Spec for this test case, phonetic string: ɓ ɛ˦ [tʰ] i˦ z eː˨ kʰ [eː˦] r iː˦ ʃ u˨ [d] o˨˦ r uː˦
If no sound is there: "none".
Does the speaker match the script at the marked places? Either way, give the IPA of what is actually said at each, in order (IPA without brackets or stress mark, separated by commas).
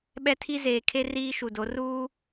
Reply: tʰ, e˦, d